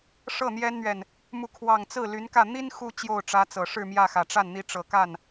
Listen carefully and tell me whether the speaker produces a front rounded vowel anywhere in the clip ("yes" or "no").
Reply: yes